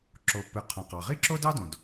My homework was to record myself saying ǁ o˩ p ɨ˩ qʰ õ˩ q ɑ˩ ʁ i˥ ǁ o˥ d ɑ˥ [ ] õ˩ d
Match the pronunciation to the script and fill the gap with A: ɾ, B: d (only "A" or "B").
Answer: B